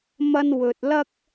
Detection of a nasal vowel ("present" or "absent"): absent